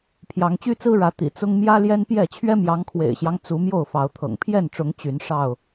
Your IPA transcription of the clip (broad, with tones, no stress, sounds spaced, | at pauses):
pʰ j ɑ˨˦ ŋ t͡ɕ y˦ t͡s ɹ̩˦ ɻ ä˨˦ t̪ ḭ˨˩ t͡s ʊ˦ ŋ m j ä˦ l j ɛ˦ n p j ɛ˥˨ t͡ɕʰ ɥ ɛ˦ m j ɑ˨˦ ŋ kʰ w ḛ˨˩ ɪ̯ ɕ j ɑ˦ ŋ t͡s u˨˦ m j o˥˨ ʊ̯ f ɑ˨˦ ʊ̯ t̪ʰ ɤ̰˨˩ ŋ pʰ j ɛ˥˨ n ʈ͡ʂ ʊ˨˦ ŋ t͡ɕ y˨˦ n ʂ ɑ˥˨ ʊ̯